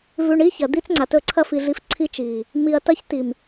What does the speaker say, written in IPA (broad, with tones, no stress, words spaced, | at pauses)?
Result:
vʉ˨ɳ i˦çɐ˨ d̪i˦t͡sŋ͡ǀa˨tɵ˦˨ǀʰɐ˦ fi˨ɮi˨˦f ǀʰi˦t͡ʃi˨ | mi˨ɐ̯tɐ˦ç ti˨m